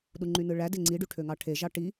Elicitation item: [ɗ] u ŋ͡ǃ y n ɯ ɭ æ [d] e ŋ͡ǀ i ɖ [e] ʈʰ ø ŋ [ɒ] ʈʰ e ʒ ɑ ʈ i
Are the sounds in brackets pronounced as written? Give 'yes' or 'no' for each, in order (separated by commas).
yes, yes, no, no